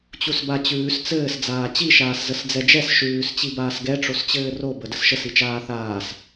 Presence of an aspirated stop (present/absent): absent